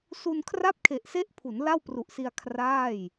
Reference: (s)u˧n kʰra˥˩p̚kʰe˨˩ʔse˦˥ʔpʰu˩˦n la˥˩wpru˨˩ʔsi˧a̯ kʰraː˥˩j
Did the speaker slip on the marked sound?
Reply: no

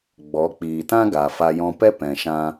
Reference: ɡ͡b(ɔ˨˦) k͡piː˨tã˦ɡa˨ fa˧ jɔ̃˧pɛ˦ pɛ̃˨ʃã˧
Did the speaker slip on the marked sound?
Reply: no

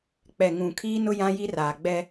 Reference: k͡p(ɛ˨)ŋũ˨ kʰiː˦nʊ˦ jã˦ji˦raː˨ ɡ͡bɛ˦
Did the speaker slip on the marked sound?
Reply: no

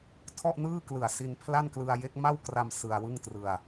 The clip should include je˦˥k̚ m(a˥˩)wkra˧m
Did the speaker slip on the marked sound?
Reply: no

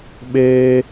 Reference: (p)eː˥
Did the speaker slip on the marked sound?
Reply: yes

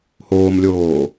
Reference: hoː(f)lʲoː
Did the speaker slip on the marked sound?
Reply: yes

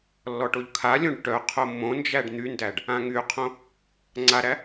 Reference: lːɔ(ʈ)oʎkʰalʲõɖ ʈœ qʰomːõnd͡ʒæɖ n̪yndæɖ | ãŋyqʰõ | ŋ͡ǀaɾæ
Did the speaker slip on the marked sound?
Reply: no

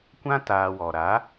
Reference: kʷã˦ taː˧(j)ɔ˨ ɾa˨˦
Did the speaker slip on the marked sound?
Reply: yes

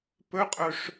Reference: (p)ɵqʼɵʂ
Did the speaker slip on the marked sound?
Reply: no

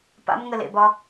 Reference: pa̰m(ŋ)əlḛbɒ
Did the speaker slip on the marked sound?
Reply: no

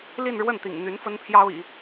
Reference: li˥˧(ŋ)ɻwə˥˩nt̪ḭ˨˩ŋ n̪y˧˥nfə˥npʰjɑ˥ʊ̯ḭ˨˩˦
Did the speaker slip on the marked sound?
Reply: yes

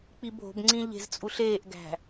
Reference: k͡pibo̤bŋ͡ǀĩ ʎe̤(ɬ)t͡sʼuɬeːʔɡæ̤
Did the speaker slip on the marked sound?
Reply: yes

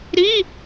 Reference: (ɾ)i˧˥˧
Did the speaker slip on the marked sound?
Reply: no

